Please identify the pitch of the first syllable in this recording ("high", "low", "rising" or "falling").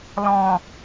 low